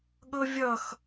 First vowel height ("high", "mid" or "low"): mid